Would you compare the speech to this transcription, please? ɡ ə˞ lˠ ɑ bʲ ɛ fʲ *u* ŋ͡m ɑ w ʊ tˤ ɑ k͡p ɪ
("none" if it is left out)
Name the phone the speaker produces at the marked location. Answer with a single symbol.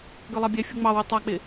u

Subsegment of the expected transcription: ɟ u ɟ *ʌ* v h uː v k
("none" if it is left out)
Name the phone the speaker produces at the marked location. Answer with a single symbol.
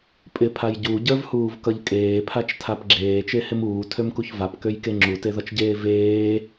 ə˞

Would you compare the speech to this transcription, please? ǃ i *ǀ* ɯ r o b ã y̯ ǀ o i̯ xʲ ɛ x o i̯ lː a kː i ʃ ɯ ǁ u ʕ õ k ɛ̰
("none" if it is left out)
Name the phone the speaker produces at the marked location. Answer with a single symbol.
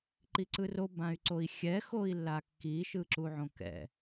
ǀ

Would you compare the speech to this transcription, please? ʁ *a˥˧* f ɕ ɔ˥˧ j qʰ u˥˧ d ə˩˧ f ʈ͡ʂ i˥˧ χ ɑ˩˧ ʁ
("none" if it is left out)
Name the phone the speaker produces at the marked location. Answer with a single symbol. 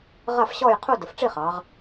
a˥˧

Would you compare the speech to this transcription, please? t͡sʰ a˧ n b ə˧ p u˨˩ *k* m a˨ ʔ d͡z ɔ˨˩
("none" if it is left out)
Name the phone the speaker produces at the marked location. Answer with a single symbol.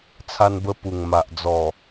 ŋ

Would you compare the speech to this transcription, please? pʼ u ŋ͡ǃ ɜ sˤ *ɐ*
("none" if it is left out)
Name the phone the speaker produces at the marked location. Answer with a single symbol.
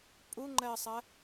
ɐ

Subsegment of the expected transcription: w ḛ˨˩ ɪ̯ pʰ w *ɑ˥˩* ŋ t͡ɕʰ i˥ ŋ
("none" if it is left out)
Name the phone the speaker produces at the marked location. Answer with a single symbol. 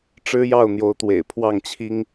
ɑ˥˩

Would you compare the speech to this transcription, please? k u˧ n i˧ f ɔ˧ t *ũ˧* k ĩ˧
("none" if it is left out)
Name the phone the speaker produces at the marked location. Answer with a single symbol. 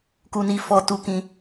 u˧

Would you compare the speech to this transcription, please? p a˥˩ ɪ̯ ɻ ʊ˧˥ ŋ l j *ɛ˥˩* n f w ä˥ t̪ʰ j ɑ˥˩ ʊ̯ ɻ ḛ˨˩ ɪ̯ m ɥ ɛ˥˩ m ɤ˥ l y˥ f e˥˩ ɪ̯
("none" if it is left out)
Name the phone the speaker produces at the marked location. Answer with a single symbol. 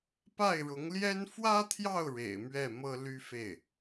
ɛ˥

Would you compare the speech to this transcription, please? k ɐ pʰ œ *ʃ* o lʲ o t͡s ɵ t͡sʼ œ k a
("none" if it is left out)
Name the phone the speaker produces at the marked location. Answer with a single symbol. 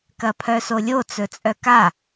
s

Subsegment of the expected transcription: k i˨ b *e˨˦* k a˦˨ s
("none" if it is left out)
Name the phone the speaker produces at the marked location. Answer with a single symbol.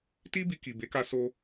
e˨˦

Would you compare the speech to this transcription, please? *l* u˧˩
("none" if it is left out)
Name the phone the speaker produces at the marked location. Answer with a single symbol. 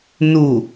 n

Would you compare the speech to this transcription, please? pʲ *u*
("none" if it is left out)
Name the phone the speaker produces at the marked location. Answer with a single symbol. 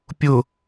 ʊ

